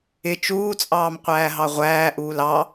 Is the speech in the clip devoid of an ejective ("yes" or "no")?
no